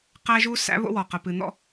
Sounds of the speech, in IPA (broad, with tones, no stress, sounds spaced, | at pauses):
q æ˦ ʒ u˦ s æ̰˦ β o̰˦ w ɔ˨ q ə˨ p ɨ˨ n̪ ɔ̰˦